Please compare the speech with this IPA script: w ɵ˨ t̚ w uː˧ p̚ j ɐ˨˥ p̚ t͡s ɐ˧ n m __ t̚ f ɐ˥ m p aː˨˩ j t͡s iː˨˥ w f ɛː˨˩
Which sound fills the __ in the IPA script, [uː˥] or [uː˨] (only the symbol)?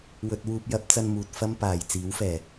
uː˨